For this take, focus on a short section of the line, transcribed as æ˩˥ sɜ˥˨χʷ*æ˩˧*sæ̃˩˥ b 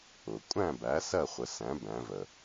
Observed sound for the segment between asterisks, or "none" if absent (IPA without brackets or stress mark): ə˩˧